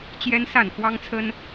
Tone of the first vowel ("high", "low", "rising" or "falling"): high